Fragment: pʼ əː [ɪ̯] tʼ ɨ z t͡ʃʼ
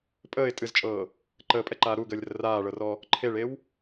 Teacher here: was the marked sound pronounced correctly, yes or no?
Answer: yes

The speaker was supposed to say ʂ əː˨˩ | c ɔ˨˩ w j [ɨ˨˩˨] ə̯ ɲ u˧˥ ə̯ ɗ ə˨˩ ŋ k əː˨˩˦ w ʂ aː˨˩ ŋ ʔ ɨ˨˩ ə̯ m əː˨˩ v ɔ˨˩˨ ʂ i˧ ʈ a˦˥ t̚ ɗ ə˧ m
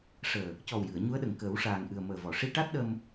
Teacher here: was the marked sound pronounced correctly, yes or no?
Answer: yes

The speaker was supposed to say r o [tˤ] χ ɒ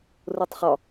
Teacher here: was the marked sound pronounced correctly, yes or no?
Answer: yes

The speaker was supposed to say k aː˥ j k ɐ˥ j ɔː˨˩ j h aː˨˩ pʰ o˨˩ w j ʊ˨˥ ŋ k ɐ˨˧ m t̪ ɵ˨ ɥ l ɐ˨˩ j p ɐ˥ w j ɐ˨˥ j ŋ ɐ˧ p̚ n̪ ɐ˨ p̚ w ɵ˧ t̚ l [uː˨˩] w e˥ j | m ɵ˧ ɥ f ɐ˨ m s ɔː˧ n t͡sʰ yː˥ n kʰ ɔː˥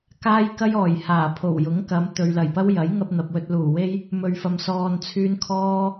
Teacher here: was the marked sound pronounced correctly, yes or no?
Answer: yes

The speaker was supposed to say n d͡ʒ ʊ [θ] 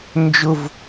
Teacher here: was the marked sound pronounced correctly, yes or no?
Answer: no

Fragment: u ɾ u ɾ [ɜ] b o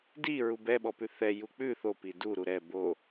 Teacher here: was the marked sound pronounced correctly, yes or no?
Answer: no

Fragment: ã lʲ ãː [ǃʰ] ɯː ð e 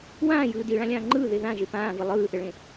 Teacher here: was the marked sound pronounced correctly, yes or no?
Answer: no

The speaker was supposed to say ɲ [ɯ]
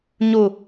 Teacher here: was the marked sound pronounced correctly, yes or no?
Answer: no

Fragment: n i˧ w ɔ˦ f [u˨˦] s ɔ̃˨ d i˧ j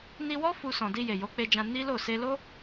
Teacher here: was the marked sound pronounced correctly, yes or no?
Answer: no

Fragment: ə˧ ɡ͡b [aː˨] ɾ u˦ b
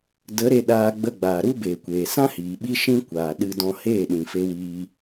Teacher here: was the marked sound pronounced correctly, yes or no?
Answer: yes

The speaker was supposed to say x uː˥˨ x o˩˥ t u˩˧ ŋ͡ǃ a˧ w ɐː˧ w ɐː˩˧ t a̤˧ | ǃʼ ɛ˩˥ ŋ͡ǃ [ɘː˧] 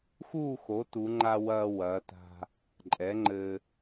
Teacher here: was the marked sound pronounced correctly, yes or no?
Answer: yes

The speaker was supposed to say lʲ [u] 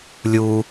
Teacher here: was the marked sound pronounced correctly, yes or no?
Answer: yes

